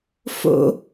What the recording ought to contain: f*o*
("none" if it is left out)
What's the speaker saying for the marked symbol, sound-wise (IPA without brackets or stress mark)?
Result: o̰